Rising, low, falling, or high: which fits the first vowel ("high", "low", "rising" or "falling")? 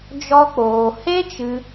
high